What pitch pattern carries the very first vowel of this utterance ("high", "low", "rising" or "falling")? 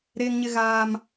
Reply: high